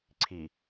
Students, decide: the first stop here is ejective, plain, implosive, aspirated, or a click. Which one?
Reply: click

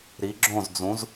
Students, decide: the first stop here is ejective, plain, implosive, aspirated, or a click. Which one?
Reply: click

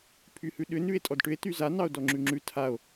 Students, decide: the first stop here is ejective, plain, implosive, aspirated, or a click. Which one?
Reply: aspirated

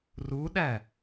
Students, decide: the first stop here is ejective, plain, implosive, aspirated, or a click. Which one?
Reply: implosive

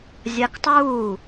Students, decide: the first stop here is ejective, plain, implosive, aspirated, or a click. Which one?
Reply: plain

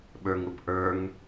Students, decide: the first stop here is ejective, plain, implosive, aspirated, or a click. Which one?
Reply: implosive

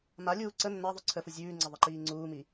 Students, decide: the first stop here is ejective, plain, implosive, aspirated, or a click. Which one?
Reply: click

